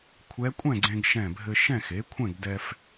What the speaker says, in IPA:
kʷʰ ɛ˧˥ kʷʼ ɛ̃˥˨ ɡ͡ǀ ẽ˧ ɡ ʃ ɛ̃˧˩ bʱ ɘ˧ ʃ ɛ̃˥˨ x e˩˥ kʷʰ ɛ̃˥˨ ɡ d ɛ˧ f

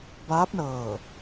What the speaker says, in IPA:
b aː˧˥ p̚ n ɤː˧˩

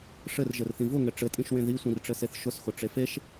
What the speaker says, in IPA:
ʂ ɘ r ʒ ɘ r θ ĩ v ʊ ŋ ɘ ʈ͡ʂ ɘ tʼ ĩ ʃ w ẽ ð i sʷ ĩ r ʈ͡ʂ ɘ s e θ ʃ ʊ s x ʊ ʈ͡ʂ e f e ʃ

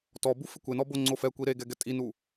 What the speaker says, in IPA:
t ɔ b u f ɪ kʷ e n ɔ b o ŋ͡ǀ o f ɛ kʷ i ɾ e ɡ ɛ ɡ ɛ tʼ i n u

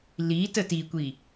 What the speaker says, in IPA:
l i t ə t i kʷ i

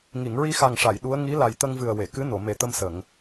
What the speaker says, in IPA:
ŋ i˨˩˨ ŋ ɹ i˧ x a˨˩ ŋ ʂ a˨˩˨ j ɗ u˧˥ ə̯ ŋ i˧˥ l a˨˩ j t̪ ə˧ ŋ v ɨ˨˩ ə̯ w e˨˩˨ k ɨ˧˥ n o˨˩˨ m e˨˩ t̪ ə˧ m s ə˨˩˨ ŋ

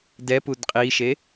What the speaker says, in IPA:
d ɛ p u d qʼ i ʃ e

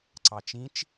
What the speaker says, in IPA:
ǀ ɑ t͡ʃ ĩ t͡ʃ

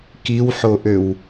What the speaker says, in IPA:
k i w ħ o ʔ ø w

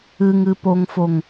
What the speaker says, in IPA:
ɨ ŋ ɨ p o ŋ f o ŋ

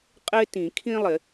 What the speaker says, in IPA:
qʼ ɪː˥ t ĩ˨˩˦ kʰ ĩ˥ lˠ ɪ˨˩˦

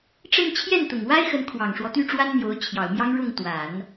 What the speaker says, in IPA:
ʈ͡ʂ ə˥˧ n t͡ɕʰ j ɛ˥˩ n t̪ ʊ˨˩ ŋ w a˥ ɪ̯ x ə˧˥ n kʰ w ɑ˨˩ ŋ ʂ w ɔ˦ t̪ y˥˩ ʈ͡ʂ w a˥ n n̪ j o˧˥ ʊ̯ t͡ɕʰ j ɑ˨˩ ʊ̯ m j ɑ˥ ŋ ɻ ʊ˥˩ ŋ t̪ w a˨˩˦ n

